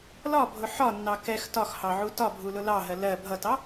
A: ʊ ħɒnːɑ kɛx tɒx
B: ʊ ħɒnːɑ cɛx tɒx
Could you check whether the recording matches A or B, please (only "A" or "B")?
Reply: A